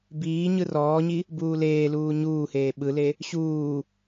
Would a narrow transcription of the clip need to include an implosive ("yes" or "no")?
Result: yes